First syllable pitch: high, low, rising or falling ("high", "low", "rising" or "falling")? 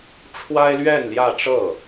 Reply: high